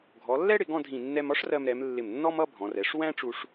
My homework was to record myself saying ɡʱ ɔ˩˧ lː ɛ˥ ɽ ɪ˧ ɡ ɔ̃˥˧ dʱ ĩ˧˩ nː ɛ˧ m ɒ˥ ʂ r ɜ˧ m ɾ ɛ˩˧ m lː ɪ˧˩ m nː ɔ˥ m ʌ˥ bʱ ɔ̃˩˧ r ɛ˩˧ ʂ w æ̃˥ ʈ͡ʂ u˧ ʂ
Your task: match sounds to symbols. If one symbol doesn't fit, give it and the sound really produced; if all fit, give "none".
none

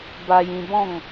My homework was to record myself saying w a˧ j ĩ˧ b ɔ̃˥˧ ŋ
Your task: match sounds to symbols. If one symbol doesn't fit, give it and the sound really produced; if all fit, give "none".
w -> b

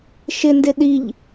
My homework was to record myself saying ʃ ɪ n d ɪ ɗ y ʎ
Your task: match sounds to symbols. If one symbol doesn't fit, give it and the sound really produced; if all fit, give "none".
y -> i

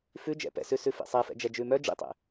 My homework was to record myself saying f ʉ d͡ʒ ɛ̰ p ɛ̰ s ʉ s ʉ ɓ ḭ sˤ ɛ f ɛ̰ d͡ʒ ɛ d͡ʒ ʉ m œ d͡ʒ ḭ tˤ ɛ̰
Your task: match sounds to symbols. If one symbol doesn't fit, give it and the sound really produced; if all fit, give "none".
ɓ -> f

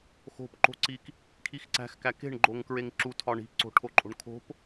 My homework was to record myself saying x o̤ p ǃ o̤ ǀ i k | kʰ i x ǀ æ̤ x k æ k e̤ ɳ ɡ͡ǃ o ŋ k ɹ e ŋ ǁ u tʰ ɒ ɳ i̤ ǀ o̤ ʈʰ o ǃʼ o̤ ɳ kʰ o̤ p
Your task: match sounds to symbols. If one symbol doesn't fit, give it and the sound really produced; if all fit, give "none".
none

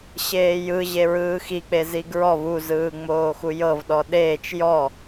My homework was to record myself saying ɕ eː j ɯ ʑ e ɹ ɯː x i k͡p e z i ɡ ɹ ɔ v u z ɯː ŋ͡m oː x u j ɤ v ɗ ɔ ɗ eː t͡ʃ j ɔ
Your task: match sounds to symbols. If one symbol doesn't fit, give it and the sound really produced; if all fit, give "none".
none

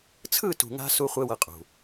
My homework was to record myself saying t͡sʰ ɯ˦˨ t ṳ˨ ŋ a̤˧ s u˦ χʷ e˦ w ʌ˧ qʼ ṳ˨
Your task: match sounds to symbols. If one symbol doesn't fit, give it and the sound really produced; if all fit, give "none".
none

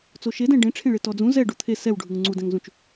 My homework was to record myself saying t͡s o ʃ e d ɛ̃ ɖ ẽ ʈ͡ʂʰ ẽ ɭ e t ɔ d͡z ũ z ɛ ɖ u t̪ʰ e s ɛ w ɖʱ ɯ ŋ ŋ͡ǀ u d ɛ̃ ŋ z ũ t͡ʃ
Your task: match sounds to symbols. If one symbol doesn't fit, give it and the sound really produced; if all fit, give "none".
none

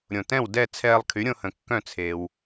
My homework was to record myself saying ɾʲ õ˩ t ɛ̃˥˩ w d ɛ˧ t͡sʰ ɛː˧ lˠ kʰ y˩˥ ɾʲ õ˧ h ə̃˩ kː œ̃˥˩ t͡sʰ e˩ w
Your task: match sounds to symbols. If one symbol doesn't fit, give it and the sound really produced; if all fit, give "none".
ɛ˧ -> ɛ˥˩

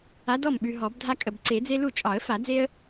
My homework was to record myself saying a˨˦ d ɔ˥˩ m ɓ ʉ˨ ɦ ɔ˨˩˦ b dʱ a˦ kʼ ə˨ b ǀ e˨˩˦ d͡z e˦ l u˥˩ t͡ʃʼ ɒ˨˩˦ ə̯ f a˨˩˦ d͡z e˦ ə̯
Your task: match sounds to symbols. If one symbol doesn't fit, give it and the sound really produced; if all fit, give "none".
none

